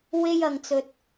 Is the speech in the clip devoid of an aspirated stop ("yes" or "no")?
yes